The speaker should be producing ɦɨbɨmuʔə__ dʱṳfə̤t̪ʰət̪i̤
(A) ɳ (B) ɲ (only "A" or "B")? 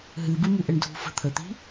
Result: A